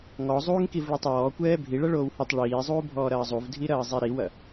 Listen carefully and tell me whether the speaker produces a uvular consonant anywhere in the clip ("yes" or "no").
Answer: no